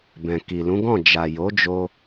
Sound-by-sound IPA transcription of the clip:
b ɛ̃˨ k i˨ l ũ˨˦ ɡ ɔ̃˦˨ d͡ʒ a˨ j o˨˦ d͡ʒ o˧

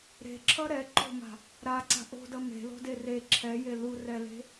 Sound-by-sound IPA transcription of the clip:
ɾ e̤ ǁʰ ʌ ɾ ɛ ǃ o̤ m a̤ | ɾ a ǀ a̤ ʔ o̤ d ʌ m e̤ l o̤ d e r e ǁʰ ɛ j e l u r ɛ l e̤

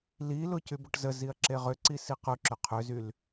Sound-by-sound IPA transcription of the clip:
l i l ʊ c y b ʊ ʈ z ə z i ɐ̯ ǁ e ʁ ʏ ǀ i s i q ʊ ǁ ʏ qʰ ʏ z y l

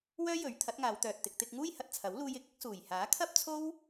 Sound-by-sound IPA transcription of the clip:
w œː˥ j ɵ˨˥ ɥ t̪ʰ ɐ˨˥ t̚ ŋ aː˨˧ w t̪ œː˨ t̚ t̪ ɪ˨ k̚ t̪ ɪ˧ k̚ ŋ uː˥ j h ɐ˨ t̚ t͡sʰ ɐ˨˥ w l uː˧ j ɪ˨˥ k̚ ɪ˨˥ k̚ s uː˨˩ j h aː˨˥ kʰ ɐ˥ p̚ t͡sʰ o˥ w

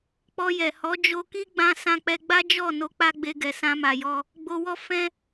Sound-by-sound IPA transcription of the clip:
k͡p ɔ˧ j ɛ˨ h ɔ˨˦ d͡ʒ o˧ k i˦ ɡ͡b ã˧ s ã˧ k͡p ɛ˧ ɡ͡b a˦ d͡ʒ ɔ˦˨ n o˧ k͡p a˦ ɡ͡b e˧ ɡ ɛ˨ s ã˧ m a˨ j ɔ˧ | ɡ͡b o˧ w ɔ˦ f ɛ̃˧

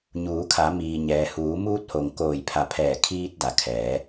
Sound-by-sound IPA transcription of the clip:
ɲ uː˩˧ kʰ a˩˧ m iː˩ ɲ ɛː˩ h uː˩˧ m uː˧ t̚ h o˩ ŋ k oː˧˩ j pʰ a˧˩ pʰ ɛː˧˩ kʰ iː˧ t̚ d a˩ kʰ ɛː˩˧

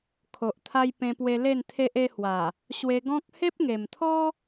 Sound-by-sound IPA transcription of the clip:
kʰ o˨ ʔ t̪ʰ a˧ j p ẽ˧ p w e˧ l e˥˧ n t̪ʰ e˦ ʔ e˧ h w a˨˩ | ɕ w e˧ ɡ ɔ̃˦ k̚ h e˦ p̚ ŋ e˨˩ m t̪ʰ ɔ˦

